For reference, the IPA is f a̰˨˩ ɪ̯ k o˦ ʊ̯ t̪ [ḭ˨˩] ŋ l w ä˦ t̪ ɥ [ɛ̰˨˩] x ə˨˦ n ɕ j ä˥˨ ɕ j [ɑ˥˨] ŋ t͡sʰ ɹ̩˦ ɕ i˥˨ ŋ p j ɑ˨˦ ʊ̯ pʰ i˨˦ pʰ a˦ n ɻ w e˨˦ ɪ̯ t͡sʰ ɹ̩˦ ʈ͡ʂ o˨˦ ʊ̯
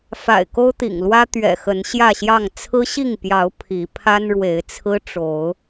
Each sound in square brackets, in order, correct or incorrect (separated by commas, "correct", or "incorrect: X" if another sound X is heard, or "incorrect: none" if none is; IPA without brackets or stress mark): correct, correct, correct